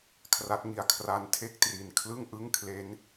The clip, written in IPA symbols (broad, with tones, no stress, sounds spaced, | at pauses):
kʰ r a˦˥ t̚ ŋ i˧ a̯ kʰ r a˧ n tʰ e˥˩ k̚ t r i˨˩ n kʰ l ɯ˥˩ ŋ ʔ ɯ˥˩ ŋ kʰ l e˦˥ n